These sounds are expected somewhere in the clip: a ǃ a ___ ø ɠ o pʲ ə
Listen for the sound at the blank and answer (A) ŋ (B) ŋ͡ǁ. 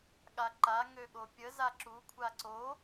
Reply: A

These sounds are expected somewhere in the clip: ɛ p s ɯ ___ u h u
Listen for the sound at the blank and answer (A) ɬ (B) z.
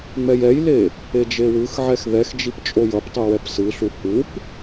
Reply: A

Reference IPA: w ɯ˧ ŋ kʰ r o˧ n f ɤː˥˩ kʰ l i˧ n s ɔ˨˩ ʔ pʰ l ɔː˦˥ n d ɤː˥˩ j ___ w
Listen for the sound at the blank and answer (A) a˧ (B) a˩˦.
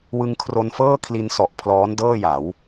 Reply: B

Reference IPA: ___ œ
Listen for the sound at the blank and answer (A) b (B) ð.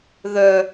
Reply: B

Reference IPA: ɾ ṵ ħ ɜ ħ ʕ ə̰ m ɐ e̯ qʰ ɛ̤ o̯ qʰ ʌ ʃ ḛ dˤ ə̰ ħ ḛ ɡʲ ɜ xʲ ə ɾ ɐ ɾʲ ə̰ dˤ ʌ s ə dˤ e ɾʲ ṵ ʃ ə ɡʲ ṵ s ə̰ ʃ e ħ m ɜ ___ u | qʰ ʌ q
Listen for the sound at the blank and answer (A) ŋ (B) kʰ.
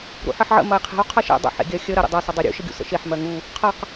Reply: A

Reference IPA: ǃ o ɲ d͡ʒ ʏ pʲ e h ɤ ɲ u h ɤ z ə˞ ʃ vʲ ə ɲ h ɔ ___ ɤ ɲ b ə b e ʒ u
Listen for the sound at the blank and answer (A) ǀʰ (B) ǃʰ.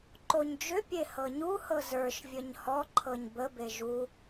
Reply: B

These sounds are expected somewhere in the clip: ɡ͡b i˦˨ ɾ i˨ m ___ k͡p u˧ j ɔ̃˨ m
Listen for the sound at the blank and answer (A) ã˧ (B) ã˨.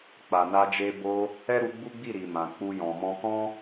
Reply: B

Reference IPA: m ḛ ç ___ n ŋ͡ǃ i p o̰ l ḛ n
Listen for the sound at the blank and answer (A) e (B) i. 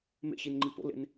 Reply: B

